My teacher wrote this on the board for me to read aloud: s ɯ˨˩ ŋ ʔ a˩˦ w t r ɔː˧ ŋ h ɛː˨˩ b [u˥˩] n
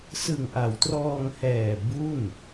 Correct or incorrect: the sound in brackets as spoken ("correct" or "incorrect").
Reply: correct